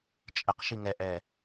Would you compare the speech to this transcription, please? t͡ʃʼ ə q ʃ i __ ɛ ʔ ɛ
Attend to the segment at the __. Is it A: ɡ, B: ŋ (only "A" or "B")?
B